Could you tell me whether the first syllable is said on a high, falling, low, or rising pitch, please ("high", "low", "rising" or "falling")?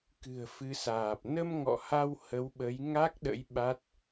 low